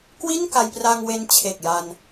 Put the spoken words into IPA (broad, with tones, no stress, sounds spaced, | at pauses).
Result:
k w i˥˩ n k a˧ j p r a˧ ŋ w e˧ n t͡ɕʰ e˨˩ k̚ j a˧ n